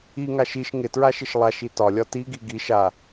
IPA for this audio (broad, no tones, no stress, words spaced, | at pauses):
iŋaʃ iʃ ŋɪtɹaʃɪʃ lˠaʃi tɒlʲɒ tiɡi ɡiʃ a